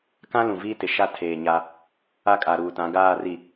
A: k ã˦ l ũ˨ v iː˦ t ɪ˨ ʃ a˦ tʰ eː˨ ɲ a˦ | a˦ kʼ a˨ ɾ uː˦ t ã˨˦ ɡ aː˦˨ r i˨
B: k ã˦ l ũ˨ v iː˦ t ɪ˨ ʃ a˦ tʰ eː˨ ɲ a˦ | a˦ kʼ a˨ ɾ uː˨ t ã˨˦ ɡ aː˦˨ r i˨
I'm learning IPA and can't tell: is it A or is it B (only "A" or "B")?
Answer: B